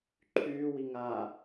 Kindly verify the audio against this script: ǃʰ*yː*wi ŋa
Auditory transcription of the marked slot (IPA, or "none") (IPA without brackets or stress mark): yː